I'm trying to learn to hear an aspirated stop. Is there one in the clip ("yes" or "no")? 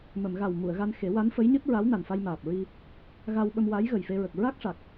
no